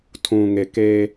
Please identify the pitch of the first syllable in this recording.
low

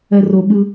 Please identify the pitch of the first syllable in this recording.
high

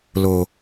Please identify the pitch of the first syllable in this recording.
low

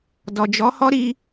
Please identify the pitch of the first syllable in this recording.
low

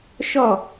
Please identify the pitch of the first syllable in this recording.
falling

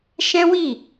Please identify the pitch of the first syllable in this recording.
high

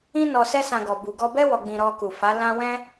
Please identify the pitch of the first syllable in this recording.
high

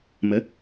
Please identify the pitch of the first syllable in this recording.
rising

